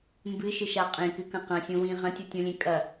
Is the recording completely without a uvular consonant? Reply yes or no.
no